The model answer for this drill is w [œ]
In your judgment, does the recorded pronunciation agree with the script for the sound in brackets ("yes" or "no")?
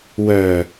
yes